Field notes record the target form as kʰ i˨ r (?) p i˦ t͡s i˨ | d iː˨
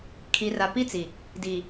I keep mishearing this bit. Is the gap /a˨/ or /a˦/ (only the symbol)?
a˨